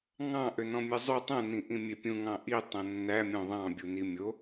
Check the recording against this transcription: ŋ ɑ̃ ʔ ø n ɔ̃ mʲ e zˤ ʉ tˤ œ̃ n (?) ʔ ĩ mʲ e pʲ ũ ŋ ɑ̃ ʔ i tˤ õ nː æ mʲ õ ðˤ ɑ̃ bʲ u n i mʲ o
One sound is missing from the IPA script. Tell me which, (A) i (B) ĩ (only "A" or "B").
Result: B